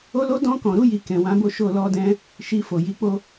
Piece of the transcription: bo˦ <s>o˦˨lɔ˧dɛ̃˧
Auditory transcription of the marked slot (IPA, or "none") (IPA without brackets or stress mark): ʃ